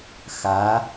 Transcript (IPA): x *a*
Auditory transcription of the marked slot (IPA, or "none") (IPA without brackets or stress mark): a